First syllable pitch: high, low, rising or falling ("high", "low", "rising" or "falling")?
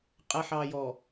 low